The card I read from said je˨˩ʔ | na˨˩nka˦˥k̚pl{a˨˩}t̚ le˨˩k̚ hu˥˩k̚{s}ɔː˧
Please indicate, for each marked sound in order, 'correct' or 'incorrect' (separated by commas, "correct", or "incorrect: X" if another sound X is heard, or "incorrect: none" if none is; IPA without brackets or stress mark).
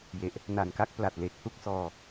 correct, correct